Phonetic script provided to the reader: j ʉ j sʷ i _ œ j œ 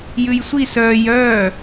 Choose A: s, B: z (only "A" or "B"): A